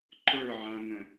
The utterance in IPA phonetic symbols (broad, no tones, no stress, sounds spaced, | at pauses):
ǃ ə˞ ʕ ã ŋ ə̃